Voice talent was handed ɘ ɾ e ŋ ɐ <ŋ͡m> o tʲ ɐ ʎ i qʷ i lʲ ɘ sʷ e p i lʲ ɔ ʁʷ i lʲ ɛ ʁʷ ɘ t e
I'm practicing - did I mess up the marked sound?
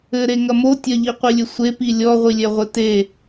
yes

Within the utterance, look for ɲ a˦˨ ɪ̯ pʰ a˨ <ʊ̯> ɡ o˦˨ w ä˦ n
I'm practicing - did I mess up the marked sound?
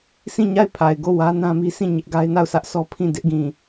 yes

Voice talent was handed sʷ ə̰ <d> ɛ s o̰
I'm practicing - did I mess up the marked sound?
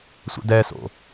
no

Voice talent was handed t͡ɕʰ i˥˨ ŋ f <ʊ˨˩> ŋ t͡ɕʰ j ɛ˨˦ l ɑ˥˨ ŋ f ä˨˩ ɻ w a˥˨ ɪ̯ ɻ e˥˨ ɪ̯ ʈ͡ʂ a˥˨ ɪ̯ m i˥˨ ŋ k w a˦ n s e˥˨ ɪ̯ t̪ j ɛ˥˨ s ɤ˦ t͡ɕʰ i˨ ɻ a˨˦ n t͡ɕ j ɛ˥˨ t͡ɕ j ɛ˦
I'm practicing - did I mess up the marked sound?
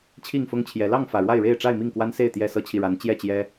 yes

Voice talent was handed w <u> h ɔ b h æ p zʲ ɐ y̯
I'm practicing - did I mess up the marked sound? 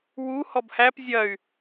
no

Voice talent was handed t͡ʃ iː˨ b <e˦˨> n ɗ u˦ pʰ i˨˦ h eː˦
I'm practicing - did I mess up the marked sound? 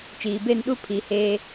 no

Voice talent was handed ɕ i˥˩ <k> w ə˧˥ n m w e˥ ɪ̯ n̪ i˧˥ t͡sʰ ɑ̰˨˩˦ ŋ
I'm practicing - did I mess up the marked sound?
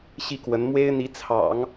no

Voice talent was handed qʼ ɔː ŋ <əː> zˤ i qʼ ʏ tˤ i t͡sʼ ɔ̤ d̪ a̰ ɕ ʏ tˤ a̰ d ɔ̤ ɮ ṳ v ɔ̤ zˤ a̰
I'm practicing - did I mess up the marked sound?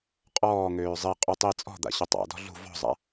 yes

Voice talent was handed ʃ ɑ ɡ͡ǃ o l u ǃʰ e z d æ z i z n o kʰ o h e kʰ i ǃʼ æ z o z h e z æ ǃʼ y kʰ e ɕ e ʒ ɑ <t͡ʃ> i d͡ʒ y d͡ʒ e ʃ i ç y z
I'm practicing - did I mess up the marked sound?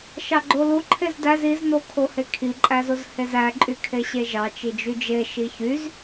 no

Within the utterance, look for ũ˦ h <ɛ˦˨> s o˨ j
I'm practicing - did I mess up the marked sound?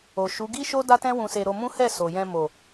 no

